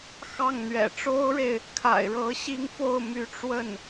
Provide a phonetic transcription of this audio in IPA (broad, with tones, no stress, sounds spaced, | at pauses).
x ɑ˥˩ ŋ n̪ ɥ ɛ̰˨˩ ʈ͡ʂ o˥ ʊ̯ ɻ e˨ ɪ̯ | kʰ a̰˨˩ ɪ̯ ɻ ɤ˧˥ ɕ i˥˧ ŋ f o˥˩ ʊ̯ m y˧˥ ʈ͡ʂ w ə˥˩ n